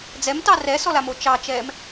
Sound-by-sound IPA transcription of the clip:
d͡zɛmtɑ rɛsɔlamo t͡ʃɑt͡ʃɛːm

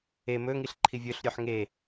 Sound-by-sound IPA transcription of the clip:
e mɵŋiɬ ǃʰivʲɵɬɾʲʉħ ŋe

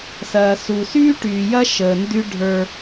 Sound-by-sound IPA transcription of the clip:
sɐː˨ su˨syː˦ ʈyː˨jɐ˦ ʃəː˨ndy˦ ɖʱə˞˦

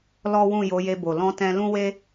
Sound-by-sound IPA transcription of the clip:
lɔ˦ wũ˦˨ jo˨˦je˧bo˨ lɔ̃˧tɛ̃˧lũ˦we˦

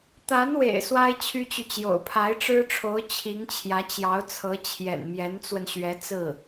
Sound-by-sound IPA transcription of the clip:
t̪a˧˥nwḛ˨˩ɪ̯ swa˥ɪ̯t͡ɕʰy˥t͡ɕy˨t͡ɕjo̰˨˩ʊ̯ pʰa˧˥ɪ̯ʈ͡ʂɻ̩˥ʈ͡ʂʰo˧˥ʊ̯ t͡ɕʰi˧˥ŋt͡ɕʰjä˧˥t͡ɕjɑ˧˥ʊ̯t͡sʰɤ˧˥ t͡ɕʰjɛ̰˨˩nmjɛ˧˥nt͡swə˧n ɕɥɛ˧˥t͡sɹ̩˥˩

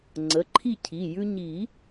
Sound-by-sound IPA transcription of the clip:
ŋ͡ǀə˩˧˩ǃʰi˥˨cʰi˩˧˩jʉ˦ ɲi˨˩˦

